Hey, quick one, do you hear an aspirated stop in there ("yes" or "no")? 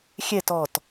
no